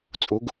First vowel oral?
yes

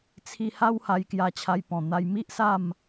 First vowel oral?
yes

